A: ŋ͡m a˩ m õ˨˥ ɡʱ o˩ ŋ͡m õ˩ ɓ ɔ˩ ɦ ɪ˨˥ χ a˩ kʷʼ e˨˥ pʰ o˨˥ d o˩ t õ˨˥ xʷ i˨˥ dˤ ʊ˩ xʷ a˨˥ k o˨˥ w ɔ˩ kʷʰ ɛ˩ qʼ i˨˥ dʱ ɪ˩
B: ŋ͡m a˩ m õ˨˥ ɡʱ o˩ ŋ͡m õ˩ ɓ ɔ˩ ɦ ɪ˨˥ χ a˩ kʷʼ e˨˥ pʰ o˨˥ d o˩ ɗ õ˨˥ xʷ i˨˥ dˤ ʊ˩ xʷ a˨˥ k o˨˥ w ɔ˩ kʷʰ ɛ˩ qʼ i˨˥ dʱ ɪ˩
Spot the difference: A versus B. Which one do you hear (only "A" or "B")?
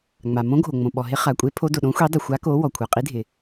B